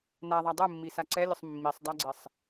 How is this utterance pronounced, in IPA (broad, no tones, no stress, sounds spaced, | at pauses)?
n a ðˤ a dˤ u mː i s a ǀ ɛ lʲ ʊ sˤ mː i sˤ dˤ a ɡ͡ǀ ɪ sˤ